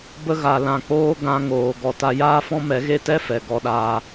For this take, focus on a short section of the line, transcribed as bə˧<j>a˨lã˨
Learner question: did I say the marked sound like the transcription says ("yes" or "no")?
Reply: no